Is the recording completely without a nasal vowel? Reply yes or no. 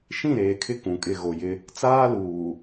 no